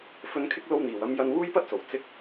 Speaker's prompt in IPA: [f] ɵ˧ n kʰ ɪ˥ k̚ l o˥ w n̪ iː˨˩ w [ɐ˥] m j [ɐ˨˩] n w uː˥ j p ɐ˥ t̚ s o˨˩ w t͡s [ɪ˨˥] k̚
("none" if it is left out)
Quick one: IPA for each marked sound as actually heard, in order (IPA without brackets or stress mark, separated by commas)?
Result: f, ɐ˥, ɐ˧, ɪ˥